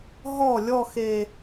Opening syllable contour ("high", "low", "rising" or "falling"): falling